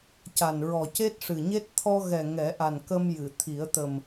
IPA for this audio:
c a˨˩ n ɹ ɔ˨˩ c e˦˥ t̚ ʂ ɨ˨˩ ɲ e˦˥ t̚ t̪ʰ ɔ˧ ɣ ɛ˨˩ ŋ ɛ˨˩˦ ʔ a˨˩ n k ə˧ m j ɨ˨˩˨ t̪ʰ i˨˩˦ ə̯ t̪ ə˨˩ m

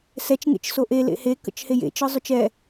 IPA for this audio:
s ɛ t͡ʃ ŋ ḛ t͡ʃ s o ʔ e l ḛ h e k ə̰ t͡ʃ h e j ḛ t͡ʃ ɯ zˤ ʊ t͡ʃ ɛ

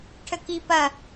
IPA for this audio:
ʈʰ ə k i p ɐ

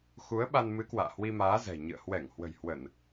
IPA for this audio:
x u˨˦ ə̯ ɓ a˧ n m ɨ˨˦ k w a̰ː˧˨ h w i˧ m aː˨˦ z ɛ̤˨˩ ɲ ɨ̰˧˨ ə̯ h w ɛ˧˩ ŋ h w ə̤˨˩ j h w ə˧˩˨ n

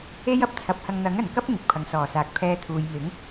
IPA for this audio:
e˥ j ɐ˨ p̚ t͡sʰ ɐ˨˥ p̚ h ɐ˧ ŋ n̪ ɐ˨˥ ŋ ɐ˨˩ n k ɐ˥ p̚ ŋ ɪ˨˥ k̚ pʰ ɐ˨ ŋ s ɔː˨˩ s aː˨ k̚ pʰ ɛː˧ t̪ʰ uː˨ j m ɪ˨˥ ŋ

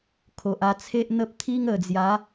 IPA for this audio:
kʰ o˨ ʔ a˧ t͡sʰ e˦ ʔ n̪ ə˦ p̚ t̪ʰ i˦ ŋ ə˨˩ d͡z j a˨˦

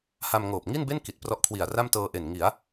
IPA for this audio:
h a˧ m ŋ oː˨˩ p̚ ŋ i˥˩ n b e˥˩ n k i˨˩ t̚ p r ɔ˦˥ ʔ kʰ w i˨˩ a̯ r a˥˩ m t ɤː˧ ʔ e˨˩ n ŋ i˩˦ a̯

